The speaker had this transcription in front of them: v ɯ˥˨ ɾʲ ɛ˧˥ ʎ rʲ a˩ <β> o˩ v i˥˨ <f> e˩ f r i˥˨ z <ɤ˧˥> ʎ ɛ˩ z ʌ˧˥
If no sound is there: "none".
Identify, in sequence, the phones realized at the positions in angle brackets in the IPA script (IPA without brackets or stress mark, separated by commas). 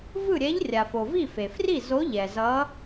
f, f, o˧˥